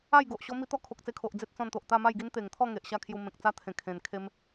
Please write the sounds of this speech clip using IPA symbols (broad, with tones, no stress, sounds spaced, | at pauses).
a˥˧ j ɡ o˨ ʔ ɕ ɔ˦ m i˧ t̪ ɔ˥˧ kʰ o˨ k̚ t͡s e˧ kʰ o˨ ʔ d͡z e˦ t̚ t͡s ɔ̃˧ n t̪ o˨ ʔ t̪ a˥˧ m a˥˧ j ɡ i˦ n t̪ e˨˩ ŋ t̪ʰ ɔ˥˧ ŋ e˨ ʔ ɕ a˥˧ kʰ j u˧ m ẽ˨ k̚ t͡s a˦ t̪ʰ ẽ˨˩ kʰ ẽ˨˩ n kʰ e˧ m